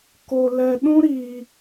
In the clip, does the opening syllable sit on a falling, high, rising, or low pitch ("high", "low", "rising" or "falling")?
low